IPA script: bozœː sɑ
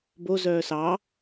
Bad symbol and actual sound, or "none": none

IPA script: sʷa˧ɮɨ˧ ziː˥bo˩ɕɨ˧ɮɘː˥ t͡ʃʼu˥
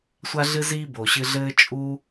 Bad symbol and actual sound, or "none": none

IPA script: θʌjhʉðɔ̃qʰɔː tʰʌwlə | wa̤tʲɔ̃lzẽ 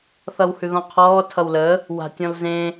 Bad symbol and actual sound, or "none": j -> w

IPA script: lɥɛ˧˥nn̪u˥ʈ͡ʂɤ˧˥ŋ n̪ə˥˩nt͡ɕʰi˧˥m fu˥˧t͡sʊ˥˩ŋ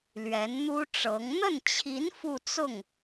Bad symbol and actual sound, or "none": m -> n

